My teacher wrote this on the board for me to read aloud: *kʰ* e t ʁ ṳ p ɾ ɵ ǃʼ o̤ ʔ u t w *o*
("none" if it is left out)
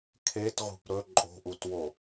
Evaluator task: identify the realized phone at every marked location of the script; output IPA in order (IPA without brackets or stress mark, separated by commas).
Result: kʰ, o